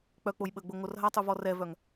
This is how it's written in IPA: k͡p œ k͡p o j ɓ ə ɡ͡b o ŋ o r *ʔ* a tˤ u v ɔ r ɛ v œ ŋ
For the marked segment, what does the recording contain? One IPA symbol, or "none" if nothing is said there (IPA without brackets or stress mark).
ɦ